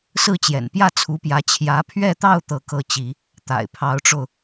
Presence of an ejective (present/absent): absent